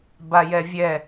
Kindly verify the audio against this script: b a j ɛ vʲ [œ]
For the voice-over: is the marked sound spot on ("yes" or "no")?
no